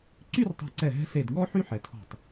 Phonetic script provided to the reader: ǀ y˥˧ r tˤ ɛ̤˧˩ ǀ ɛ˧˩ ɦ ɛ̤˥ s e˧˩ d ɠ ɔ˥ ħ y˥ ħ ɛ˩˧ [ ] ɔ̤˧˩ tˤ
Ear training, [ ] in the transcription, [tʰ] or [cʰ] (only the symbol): tʰ